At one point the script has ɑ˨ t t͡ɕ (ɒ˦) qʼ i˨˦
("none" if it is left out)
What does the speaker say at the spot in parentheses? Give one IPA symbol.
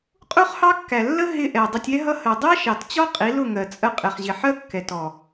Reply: ɒ˦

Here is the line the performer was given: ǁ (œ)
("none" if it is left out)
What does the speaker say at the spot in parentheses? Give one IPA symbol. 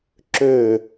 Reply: ø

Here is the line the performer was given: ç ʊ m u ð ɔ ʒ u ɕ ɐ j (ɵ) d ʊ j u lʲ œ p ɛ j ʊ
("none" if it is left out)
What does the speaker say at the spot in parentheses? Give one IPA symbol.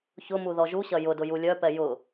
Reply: ʊ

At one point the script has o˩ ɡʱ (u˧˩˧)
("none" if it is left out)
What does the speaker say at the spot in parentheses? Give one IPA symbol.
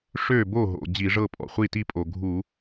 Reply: u˧˩˧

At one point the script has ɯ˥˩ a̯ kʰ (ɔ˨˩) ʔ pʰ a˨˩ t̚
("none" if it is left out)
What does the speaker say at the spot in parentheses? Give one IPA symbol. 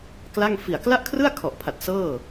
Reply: ɔ˨˩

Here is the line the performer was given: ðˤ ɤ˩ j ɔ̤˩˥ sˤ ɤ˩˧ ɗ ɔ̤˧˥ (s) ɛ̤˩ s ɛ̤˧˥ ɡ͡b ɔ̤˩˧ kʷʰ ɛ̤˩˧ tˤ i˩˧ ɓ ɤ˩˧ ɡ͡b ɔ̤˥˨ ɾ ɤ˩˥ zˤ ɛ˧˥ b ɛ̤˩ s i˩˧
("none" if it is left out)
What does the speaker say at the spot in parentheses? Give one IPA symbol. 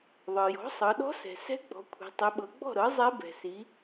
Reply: s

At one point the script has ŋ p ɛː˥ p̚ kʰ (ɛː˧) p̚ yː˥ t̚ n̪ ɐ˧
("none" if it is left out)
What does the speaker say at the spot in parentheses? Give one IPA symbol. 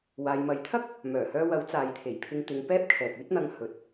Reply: ɛː˨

